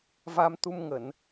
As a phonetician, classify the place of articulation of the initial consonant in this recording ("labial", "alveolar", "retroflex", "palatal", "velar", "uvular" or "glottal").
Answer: labial